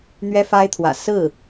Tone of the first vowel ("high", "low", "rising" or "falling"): high